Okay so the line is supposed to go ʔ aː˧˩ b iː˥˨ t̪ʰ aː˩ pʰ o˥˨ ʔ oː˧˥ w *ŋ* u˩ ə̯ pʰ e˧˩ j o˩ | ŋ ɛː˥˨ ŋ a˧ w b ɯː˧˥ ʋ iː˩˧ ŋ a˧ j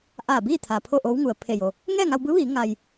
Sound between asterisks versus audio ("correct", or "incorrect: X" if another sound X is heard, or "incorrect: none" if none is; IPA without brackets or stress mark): correct